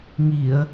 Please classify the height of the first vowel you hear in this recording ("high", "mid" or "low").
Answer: high